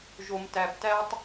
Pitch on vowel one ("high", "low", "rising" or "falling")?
low